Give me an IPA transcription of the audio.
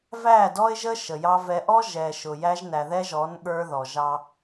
v æ˦˨ d ɔ˦ ɪ̯ ʒ ə˦ ʃ ə˨ j ɑ˦ v ɛ˨ ʔ ɔ˦ ʒ ɛ˨ ʃ ʊ˨ j æ˦ ʒ n æ˨ ð ɛ˦ ʒ ɔ˨˦ n ɠ ə˞˦ ð ɔ˨ ʒ ɑ˦

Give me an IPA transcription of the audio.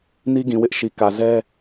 n i˦ ɡ ĩ˨ w ɪ˦ ʔ ʃ i˨ k ä˨ z ɛ˦

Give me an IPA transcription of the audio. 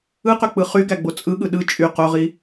ɯ q ø k͡p ɯ χ y ɡ æ ɡ͡b o t͡sʼ ɯ ɠ ɯ ɗ ɯ t͡ʃʼ y q o ʁ i

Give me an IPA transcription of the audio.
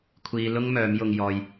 kʷʰ iː˨˧ l ʊ˥ ŋ m œː˨˥ m j ʊ˧ ŋ j ɔː˧ j

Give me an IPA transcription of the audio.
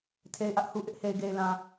tʰ e˨ ɪ̯ ʔ ä˦ ʔ h u˨ ʔ ɪ˦ ʔ h e˨ ɪ̯ ɡ e˨ ɪ̯ l ã˨

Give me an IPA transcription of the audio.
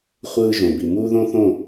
χʷ ɯː˧ ʒ õ˨ b i˨ m uː˦ ð õ˦ θ õ˦˨

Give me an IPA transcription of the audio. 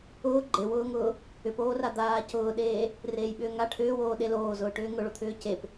ʊː ɡ͡ǃ e w ʊː ŋ ʊː | ʏ p oː r a d̪ aː c ʊː ɗ eː | r eː j ɓ ʏː ŋ a ʈʰ ʏː w oː ɗ e l oː z ʊː ʈ ʏː ŋ ʊ ɭ o t̪ʰ ʏː c e p

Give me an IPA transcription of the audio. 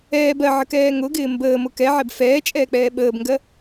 ɛː b ɜ ʕ ə k ɛː ŋ ʊ ɡ ɪː m b əː m ʊ k ɛ ʕ ɛ b f ɛː t͡ʃʼ ɛː k͡p ɛː ɓ əː b ŋ ɡ ɜ

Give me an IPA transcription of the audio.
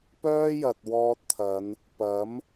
p œː˥ j ɐ˨ t̚ w ɔː˧ t̚ t̪ʰ ɐ˨˧ n | p ɐ˨˥ m

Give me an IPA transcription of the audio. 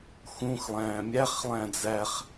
x ũ x lˠ æ̃ː mʲ æ χ lˠ æ̃ d͡z æ χ

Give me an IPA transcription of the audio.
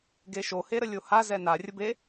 ɡ e ʃ o h e ɾ ə lʲ o h a z ɛ n a rʲ ə b e

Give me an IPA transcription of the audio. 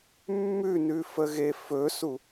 mː ʉ n ʉ f ə ɣ e f ɵ s u

